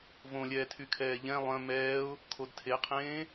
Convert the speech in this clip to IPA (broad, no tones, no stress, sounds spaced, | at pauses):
v õ lʲ ɛː tʰ y kʰ ɛː ʎ ɛ̃ lˠ œ̃ m ɛː ʊ̯ | kʰ o d tʰ e qʰ ẽː